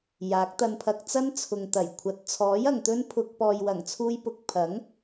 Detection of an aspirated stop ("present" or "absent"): present